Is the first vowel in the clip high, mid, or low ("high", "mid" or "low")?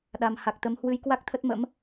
low